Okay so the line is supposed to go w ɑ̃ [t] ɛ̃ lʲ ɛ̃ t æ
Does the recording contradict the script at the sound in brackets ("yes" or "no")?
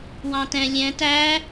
no